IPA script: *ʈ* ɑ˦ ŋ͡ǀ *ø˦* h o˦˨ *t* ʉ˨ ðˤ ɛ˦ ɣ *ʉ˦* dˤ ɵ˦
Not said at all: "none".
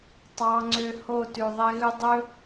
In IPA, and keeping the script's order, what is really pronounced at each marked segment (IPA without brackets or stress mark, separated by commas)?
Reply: tˤ, ø˦, t, ʉ˦